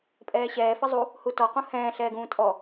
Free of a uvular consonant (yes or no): no